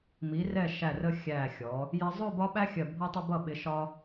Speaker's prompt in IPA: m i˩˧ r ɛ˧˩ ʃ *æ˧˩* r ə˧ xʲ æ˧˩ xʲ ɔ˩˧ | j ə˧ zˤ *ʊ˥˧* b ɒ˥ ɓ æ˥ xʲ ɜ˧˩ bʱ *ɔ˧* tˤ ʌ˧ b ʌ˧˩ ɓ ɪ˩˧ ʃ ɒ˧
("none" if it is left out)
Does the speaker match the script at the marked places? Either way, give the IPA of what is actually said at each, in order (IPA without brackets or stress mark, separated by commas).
æ˧˩, ʊ˥˧, ɔ˧